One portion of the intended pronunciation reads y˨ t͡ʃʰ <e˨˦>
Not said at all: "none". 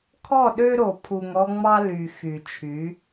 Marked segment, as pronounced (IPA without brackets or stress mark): y˨˦